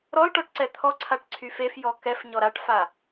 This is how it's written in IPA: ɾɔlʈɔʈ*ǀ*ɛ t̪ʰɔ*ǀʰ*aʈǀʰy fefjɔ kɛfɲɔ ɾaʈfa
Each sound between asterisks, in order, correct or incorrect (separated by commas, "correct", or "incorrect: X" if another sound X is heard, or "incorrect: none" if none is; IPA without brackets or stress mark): correct, correct